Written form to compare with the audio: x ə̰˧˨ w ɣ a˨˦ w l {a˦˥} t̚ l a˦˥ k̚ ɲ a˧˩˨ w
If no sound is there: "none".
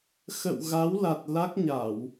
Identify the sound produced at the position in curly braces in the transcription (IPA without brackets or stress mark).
a˨˩